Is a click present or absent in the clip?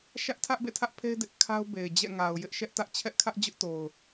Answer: absent